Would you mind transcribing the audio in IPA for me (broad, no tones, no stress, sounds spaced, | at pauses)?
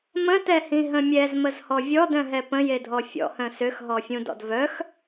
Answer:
m ə̃ t ɛ h ĩ ɦ ə̃ mʲ ɛ z m ə z h ɔ vʲ ɔ d œ̃ ɦ ɛ p ə̃ j e dʱ ɔ fʲ ɔ̰ h œ̃ s ø x ɦ ɔ fʲ ũ d ɔ̰ d v œ x